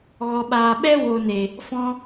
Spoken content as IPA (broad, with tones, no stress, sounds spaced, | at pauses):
ɣ ɔ˨ ɓ aː˨ ɓ ɛ˦ w o˨ n e˨ | f ɔ̃˧